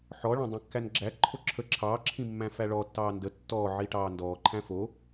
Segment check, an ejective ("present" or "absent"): absent